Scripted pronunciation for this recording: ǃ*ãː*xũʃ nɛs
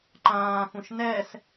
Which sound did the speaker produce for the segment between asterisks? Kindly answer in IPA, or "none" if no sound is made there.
ãː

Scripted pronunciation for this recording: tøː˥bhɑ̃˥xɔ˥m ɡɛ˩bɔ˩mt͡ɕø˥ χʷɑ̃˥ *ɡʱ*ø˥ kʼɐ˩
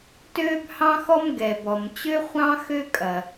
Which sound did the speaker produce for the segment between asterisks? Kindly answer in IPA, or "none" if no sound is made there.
x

